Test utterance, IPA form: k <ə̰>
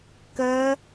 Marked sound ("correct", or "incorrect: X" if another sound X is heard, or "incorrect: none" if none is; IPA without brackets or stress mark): incorrect: ə